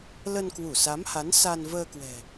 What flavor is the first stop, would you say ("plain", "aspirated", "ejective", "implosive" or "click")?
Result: plain